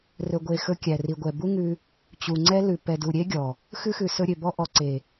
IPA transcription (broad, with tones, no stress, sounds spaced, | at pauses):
r ɵ˨ ɡʷ e˨ x ɵ˧ kʲ æ˨ r i˨ ɡʷ ɛ˨ b u˦ ŋ ʉ˧ | t͡ɕ u˨ ŋ͡ǀ ɛ˦ l ʉ˨ p ɛ˨ d u˨ ɾʲ e˦ ɡʲ ɔ˨ | x ʉ˦ x ʉ˨ s ɵ˧ ɾʲ ø˨ b ɔ˧ ʔ ɔ˨ ǀ e˨